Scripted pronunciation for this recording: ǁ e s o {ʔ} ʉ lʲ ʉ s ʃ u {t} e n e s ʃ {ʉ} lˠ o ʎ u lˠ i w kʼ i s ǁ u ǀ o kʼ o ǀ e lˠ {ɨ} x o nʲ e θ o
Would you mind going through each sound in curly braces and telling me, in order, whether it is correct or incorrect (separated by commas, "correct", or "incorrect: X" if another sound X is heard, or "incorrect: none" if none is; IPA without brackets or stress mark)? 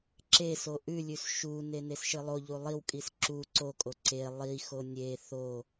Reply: correct, incorrect: n, incorrect: ɨ, incorrect: i